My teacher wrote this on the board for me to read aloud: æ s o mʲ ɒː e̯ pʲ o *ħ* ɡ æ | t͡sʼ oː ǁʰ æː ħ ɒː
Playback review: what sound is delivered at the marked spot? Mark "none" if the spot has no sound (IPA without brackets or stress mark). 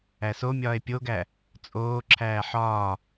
none